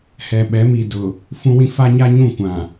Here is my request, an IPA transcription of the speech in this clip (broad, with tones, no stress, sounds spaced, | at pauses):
h ɛ˨ ɓ ɛ˨˦ m i˨ d ʊ˨ | f ũ˦ w ĩ˦ f a˦ ɲ a˦ ɲ ũ˦˨ kʷ ã˨